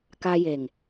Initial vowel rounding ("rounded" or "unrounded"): unrounded